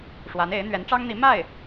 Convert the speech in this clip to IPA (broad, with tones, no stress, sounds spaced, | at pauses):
ʂ w a˧˥ n e˧˥ ɪ̯ n̪ ɥ ɛ˧˥ n ʈ͡ʂ ɑ˥ ŋ n̪ i˧˥ m a˥˩ ɪ̯